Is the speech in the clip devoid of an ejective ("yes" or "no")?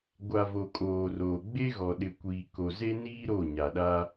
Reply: no